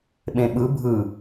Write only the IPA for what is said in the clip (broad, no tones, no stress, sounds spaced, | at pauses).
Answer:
ɓ ẽ ɓ ɯ bʱ ɯ